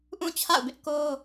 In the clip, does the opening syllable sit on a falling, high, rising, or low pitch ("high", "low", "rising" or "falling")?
falling